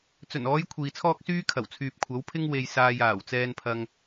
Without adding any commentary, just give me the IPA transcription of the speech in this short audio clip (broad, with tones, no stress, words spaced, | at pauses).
t͡sɵ˨˩nɔː˨˧j kʷʰiː˨t͡sʰɔː˥k̚syː˥ kʰɐ˨˩wt͡sʰyː˨p̚kʷʰɐ˨˥w pʰɪ˥ŋ we˧jsaː˧j aː˨˩wt͡sɛː˧npʰɐ˧ŋ